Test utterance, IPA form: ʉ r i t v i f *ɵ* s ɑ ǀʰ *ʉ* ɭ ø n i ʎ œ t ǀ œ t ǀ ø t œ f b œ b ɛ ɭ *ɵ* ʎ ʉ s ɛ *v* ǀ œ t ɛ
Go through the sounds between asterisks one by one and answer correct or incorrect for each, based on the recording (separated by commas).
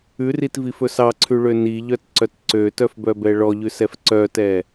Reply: correct, correct, incorrect, incorrect